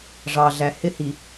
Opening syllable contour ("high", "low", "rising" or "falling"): low